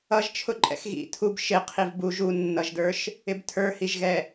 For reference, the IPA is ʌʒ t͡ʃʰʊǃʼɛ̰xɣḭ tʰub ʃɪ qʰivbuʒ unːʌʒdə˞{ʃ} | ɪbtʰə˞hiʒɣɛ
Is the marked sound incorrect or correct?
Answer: correct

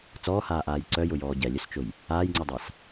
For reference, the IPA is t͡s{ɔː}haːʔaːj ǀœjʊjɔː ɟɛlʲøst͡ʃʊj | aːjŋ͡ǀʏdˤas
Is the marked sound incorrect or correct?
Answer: correct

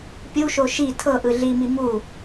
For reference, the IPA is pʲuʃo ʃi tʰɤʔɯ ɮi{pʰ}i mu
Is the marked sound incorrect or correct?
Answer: incorrect: m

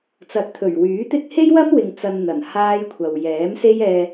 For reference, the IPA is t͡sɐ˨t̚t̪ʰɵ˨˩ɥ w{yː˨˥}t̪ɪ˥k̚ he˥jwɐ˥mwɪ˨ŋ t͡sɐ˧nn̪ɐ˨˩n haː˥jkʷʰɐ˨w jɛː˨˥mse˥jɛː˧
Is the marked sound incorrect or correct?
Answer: correct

